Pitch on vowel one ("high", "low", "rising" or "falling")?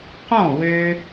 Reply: falling